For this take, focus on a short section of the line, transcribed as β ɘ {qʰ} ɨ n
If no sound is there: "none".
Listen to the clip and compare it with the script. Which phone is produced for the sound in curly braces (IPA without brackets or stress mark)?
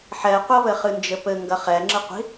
χ